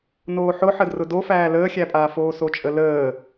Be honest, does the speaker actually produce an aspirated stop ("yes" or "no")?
no